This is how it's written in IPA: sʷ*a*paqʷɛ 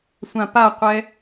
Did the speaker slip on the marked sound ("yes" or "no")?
yes